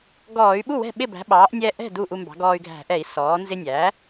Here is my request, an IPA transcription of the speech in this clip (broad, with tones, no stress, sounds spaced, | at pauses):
ɡ ɔː˧˩˧ y̯ ɓ u˥˩ w ɛ̤˥˩ ɓ ɪ˥˩ b æ̤˩˥ ɓ ɑː˩˥ ʔ nʲ ɛ˧ ʔ ɛ̤˥˩ d u˥˩ ʔ u˧ m b ɑ̤˩˥ ɡ ɔː˧ y̯ ɡʱ æ̤˧˩˧ ʔ ɛ˧˩˧ i̯ s ɔː˩˥ n z ɪ˧ nʲ æː˩˥